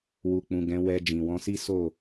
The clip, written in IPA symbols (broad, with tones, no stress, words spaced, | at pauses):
wu˨k͡pũ˨ ɡɛ̃˨˦ wɛ˧ d͡ʒĩ˨wɔ̃˨˦si˦ so˦˨